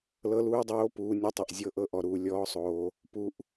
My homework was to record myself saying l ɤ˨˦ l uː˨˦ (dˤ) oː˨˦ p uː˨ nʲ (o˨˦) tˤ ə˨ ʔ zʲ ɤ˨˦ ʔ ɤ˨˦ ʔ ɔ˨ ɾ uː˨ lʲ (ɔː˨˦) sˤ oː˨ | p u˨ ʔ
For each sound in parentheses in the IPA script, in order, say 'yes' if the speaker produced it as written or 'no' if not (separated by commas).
yes, no, yes